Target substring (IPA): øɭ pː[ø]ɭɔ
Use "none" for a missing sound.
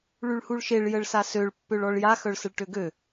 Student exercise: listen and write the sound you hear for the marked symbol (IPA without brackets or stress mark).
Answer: ø